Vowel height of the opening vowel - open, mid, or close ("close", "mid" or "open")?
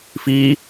close